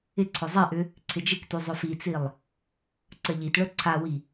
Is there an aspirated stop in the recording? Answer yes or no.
yes